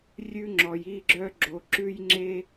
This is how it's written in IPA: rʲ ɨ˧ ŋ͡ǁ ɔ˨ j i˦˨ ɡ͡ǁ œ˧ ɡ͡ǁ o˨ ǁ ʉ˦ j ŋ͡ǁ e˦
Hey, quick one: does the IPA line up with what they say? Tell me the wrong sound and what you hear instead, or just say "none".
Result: ɨ˧ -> ʉ˧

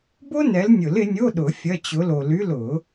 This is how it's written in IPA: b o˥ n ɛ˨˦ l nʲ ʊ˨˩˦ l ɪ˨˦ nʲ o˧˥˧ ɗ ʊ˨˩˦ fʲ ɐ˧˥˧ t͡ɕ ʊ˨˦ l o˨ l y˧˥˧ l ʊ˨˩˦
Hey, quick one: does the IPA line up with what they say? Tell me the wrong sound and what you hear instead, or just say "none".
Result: none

